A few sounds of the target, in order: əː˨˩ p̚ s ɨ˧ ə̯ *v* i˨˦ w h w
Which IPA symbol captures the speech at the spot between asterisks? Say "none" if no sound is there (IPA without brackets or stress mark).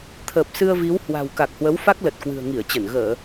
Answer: v